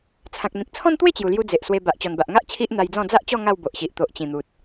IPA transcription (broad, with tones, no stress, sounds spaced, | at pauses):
t͡sʰ ã˨ k̚ n̪ ĩ˨ k̚ t͡sʰ ɔ̃˦ n t̪ w e˥˧ t͡ɕ j u˨˩ l j u˧ d͡z e˨ ʔ s w e˧ b a˨ ʔ t͡ɕ ɔ˨˩ n b a˨ ʔ ŋ a˦ ʔ t͡ɕʰ i˦ ʔ n̪ a˧ j d͡z ɔ̃˥˧ d͡z a˦ ʔ t͡ɕ ɔ˥˧ ŋ a˥˧ w b o˨ ʔ ɕ i˨ ʔ t̪ o˨ ʔ t͡ɕ ĩ˨˩ n̪ u˨ t̚